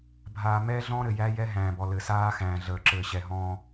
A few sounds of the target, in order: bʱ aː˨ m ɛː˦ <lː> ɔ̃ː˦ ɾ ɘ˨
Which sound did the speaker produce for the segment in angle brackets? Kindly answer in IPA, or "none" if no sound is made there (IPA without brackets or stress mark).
ɮ